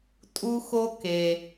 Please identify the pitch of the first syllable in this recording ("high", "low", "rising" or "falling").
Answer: high